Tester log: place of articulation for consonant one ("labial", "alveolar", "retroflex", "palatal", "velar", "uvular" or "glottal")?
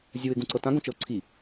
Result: alveolar